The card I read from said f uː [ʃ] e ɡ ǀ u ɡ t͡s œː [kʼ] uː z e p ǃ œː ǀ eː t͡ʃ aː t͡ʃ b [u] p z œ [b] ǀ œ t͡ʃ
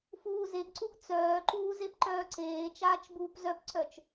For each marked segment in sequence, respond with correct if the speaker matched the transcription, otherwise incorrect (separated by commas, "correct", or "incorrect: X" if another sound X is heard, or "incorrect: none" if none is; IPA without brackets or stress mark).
incorrect: z, incorrect: ǃ, incorrect: uː, incorrect: p